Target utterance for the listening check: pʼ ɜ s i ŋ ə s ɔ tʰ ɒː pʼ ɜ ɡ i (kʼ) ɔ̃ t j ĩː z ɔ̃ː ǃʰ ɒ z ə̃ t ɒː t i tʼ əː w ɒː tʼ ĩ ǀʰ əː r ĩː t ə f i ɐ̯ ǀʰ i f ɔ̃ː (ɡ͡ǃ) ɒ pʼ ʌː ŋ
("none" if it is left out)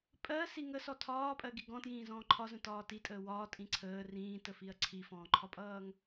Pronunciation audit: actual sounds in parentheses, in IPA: ɡ, ǃʰ

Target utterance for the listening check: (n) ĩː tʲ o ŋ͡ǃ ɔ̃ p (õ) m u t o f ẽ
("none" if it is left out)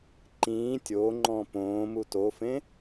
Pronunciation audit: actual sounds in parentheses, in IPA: ǃ, õː

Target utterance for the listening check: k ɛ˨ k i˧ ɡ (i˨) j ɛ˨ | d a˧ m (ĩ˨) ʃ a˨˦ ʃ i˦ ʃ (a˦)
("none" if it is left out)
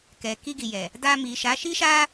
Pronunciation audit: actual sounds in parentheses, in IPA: i˨, i˨, a˦

